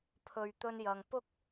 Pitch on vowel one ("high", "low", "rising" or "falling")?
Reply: low